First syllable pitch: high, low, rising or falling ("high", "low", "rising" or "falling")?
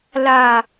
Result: low